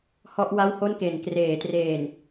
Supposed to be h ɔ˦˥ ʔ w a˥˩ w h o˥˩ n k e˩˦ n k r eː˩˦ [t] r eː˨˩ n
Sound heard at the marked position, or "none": t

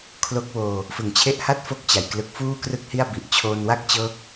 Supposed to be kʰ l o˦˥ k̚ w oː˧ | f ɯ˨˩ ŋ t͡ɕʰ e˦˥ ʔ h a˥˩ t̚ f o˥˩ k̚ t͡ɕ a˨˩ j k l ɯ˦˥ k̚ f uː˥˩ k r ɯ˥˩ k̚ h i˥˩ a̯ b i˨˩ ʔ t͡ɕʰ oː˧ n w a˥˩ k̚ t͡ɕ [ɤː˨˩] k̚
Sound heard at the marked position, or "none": ɤː˦˥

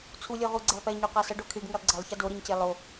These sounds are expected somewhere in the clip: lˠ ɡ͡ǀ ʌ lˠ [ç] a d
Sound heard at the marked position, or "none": ç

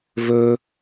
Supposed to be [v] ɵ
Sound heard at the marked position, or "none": v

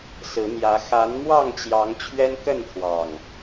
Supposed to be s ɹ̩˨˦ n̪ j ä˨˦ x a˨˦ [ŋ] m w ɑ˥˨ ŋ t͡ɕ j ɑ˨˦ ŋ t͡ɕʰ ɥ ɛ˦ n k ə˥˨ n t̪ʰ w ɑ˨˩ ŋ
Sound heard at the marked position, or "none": n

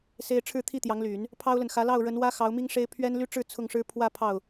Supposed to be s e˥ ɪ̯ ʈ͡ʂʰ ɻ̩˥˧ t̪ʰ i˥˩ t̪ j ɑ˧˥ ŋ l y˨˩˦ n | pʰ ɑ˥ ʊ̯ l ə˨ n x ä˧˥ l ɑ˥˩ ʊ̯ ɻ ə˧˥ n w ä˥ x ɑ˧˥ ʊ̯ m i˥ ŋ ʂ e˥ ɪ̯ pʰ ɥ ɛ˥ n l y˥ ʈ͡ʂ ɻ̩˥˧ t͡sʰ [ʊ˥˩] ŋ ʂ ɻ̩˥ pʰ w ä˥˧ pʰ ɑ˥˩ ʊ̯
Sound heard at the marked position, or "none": ʊ˥˩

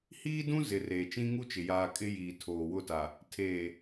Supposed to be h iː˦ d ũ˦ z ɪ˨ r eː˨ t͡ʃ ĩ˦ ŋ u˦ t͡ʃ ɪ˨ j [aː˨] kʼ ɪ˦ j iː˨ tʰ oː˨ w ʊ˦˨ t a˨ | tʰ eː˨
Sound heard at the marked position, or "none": aː˨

